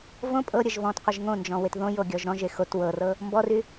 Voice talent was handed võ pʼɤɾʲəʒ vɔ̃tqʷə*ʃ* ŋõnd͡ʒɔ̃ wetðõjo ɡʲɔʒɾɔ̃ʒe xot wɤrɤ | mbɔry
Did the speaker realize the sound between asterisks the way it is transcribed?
no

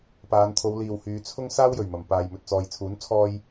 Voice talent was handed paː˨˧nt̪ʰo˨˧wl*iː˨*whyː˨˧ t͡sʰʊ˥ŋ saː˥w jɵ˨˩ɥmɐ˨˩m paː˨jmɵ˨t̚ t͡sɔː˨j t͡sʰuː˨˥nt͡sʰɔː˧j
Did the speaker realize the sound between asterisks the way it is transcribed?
yes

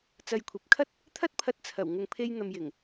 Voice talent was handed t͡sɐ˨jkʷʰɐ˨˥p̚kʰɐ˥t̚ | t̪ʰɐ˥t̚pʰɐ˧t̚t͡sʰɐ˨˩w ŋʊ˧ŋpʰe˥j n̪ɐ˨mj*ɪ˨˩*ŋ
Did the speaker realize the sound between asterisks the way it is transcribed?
yes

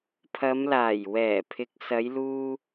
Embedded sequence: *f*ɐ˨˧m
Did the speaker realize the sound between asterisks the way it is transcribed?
no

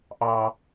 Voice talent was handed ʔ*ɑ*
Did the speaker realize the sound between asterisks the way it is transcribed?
yes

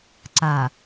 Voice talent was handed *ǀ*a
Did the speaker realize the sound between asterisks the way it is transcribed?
yes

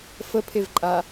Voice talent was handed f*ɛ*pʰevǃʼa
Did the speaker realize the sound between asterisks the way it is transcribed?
no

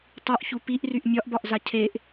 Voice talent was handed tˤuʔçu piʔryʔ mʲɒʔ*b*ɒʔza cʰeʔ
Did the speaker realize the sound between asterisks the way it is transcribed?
yes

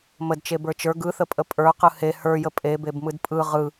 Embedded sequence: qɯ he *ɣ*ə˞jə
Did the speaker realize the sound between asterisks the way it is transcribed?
no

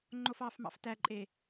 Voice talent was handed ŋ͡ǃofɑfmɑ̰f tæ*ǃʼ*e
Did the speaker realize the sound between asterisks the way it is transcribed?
yes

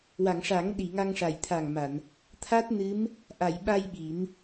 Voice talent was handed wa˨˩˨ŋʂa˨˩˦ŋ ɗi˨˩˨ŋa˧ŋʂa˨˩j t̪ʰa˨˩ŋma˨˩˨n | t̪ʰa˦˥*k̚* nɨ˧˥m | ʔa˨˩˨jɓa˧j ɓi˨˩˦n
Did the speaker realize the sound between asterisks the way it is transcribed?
no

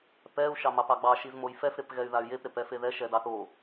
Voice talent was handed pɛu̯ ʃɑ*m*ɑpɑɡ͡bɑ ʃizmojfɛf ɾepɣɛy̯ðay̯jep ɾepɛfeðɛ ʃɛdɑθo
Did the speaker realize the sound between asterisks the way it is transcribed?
yes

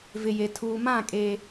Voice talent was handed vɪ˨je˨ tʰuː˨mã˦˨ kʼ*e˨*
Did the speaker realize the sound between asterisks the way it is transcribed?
no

